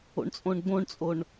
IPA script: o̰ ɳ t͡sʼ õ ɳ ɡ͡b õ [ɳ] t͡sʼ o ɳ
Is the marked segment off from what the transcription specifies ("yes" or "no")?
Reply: no